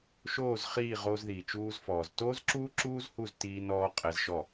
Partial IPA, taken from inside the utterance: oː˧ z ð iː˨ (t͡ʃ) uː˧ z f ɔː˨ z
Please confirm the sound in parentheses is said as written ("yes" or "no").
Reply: yes